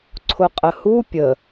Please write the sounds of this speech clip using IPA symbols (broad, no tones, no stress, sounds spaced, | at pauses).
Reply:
ǀʰ ʊ qʼ ə h u pʲ ə